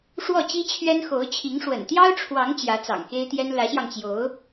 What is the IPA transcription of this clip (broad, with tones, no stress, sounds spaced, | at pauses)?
ʂ w ɔ˥˩ t͡ɕ i˥ t͡ɕʰ ɥ ɛ˥ n x o˧˥ ʊ̯ t͡ɕʰ i˧˥ ŋ ʂ w ə̰˨˩ n t̪ j ɑ˥ ʊ̯ ʈ͡ʂʰ w ɑ˧˥ ŋ t͡ɕ j ä˧˥ t͡s ɑ̰˨˩ ŋ k e˥ ɪ̯ t̪ j ɛ˥ n l ä˧˥ ɕ j ɑ˧ ŋ t͡ɕ j o˧˥ ʊ̯